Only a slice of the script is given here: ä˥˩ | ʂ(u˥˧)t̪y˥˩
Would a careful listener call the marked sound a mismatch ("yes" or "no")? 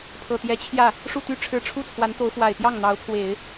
no